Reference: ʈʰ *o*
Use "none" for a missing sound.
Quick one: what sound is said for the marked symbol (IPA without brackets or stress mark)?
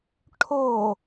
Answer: o